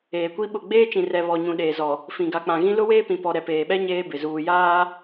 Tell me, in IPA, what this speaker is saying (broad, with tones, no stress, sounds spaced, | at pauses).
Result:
eː˨ kʷ i˦ ɓ ʊ˦˨ ɡ͡b eː˦ t͡ʃ ĩ˨ r ɛ˨ β ɔ˨ ɲ ũ˨ ɗ eː˨ z ɔ˨ | f ĩ˨ ɡ a˨ k͡p ã˨ ɣ ĩ˦ l ʊ˦ w eː˦ p ĩ˨ p ɔ˨ ɾ ɛ˨ p eː˨ ɓ ɛ˦ ɲ eː˦ b ɪ˨ z uː˨ j aː˦